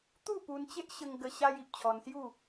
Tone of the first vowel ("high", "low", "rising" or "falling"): falling